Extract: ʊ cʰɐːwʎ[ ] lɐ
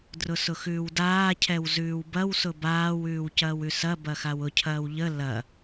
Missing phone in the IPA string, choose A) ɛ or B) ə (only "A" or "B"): B